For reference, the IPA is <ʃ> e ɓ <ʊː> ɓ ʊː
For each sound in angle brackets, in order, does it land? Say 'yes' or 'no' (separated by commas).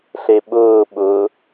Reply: no, yes